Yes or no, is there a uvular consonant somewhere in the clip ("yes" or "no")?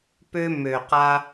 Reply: yes